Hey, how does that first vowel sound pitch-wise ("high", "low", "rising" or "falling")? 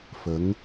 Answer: rising